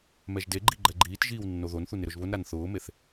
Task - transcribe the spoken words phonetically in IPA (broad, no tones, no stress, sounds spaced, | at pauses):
m ɛ ʒ d e ɡ͡ǃ i ɡ͡ǃ ɛ ɡ͡ǃ iː t ʒ iː w nː o ð o n θ u n ɪ ɾ ʊ ʒ β ʊ n ɾ a n θ ʊː m e θ